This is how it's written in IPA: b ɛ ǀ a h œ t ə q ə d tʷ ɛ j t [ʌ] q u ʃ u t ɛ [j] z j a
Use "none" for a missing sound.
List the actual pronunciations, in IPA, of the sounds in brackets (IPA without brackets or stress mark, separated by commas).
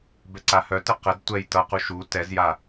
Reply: ʌ, none